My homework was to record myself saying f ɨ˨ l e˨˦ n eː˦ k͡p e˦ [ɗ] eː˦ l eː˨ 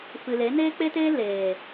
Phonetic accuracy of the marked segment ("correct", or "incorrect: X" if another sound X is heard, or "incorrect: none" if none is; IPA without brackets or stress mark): incorrect: t